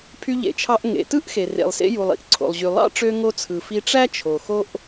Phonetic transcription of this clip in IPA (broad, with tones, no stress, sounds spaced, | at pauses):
pʰ y˧ ʎ ḛ˩ t͡ʃʰ ɑ˧ ʔ ŋ ḛ˩ t ɯ˥ ʔ x e˩ r ḛ˩ lˠ s ḛ˧ j u˩ lˠ ḭ˩ ʔ ǀʰ o̰˩ lˠ ʑ y˩ lˠ ɑ̰˥ ʈ͡ʂ ø˧ ŋ o˧ t͡sʰ ɯ˩ f i˧ ʈ͡ʂ æ˥ t͡ʃʰ o˩ x o˧ ʔ